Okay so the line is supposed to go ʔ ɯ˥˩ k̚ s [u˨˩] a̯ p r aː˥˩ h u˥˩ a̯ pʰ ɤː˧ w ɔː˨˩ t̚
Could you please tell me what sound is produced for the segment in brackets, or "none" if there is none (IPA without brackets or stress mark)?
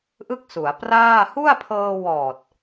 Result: u˩˦